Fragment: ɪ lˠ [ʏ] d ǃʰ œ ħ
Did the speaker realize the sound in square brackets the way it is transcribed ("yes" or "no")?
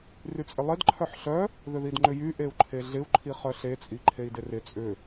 no